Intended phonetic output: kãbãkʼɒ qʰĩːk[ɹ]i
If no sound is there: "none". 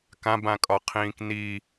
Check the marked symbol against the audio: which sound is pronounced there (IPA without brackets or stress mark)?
n